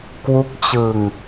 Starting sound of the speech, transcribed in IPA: k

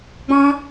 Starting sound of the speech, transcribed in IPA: ɡ͡b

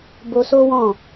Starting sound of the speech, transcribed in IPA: b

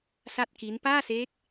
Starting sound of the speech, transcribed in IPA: s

